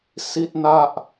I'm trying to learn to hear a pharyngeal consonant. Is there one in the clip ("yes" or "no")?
no